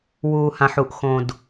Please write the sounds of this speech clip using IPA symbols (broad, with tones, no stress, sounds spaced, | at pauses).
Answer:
w uː˨ h ã˨ ħ u˨ ʔ x õ˨ d